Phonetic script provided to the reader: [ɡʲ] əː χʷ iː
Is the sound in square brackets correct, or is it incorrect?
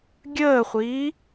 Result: correct